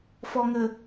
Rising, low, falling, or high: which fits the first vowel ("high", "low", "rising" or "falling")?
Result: low